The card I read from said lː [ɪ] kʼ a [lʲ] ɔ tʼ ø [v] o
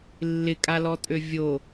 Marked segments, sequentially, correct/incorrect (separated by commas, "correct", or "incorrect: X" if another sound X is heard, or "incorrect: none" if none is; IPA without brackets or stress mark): correct, incorrect: l, incorrect: vʲ